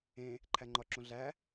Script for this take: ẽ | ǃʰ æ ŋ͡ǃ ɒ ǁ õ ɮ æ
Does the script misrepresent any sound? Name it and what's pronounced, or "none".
none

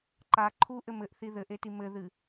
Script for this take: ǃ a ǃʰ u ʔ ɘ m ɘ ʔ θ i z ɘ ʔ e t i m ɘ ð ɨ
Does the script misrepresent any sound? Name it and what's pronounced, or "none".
z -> ð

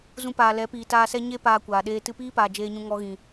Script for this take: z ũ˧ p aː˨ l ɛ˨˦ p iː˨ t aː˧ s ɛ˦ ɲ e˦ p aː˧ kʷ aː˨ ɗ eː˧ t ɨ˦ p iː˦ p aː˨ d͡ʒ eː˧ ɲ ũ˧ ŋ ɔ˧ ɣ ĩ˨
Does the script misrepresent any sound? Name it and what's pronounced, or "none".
ɨ˦ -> ɨ˧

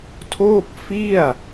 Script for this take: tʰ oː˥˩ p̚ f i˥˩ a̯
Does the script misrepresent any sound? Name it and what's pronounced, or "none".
none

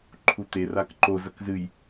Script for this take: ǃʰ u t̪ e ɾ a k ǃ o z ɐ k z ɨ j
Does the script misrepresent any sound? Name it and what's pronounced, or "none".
ɾ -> r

